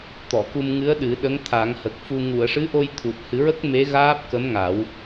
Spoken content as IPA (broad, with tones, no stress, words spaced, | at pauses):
t̪ɔ˨˩˨ku˧mŋɨ˧˥ə̯ ɗɨ˨˩˦ ɗə˧˥ŋ t̪ʰa˨˩˦ŋhə˨˩k̚fu˧ ŋu˨˩˨ə̯ʂɨ˧˥ʔo˧j t̪ʰu˨˩t̚hɨ˨˩˦ɹə˦˥k̚ me˧˥ɣaː˦˥p̚ kə˧˥mŋa˨˩˦w